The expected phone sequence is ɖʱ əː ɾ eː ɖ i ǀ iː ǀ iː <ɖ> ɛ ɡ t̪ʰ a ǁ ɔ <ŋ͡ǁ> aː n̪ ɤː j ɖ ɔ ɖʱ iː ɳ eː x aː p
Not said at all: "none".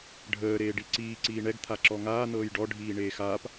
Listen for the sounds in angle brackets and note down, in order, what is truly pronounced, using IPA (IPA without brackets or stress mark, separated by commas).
ɳ, ŋ